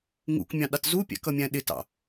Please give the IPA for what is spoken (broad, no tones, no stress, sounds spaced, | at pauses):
ŋ ṵ k mʲ ɑ̃ ɗ ɑ t z u pʲ æ̰ k ʌ mʲ æ̃ ɗ ɪ t ɑ̰